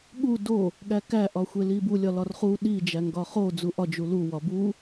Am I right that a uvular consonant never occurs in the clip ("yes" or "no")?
no